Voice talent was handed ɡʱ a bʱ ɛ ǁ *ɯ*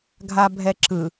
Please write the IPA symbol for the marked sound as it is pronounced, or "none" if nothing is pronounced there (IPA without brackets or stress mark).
ɯ